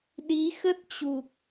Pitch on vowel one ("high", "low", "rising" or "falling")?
rising